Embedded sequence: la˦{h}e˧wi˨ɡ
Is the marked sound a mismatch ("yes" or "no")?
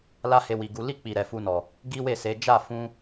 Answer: no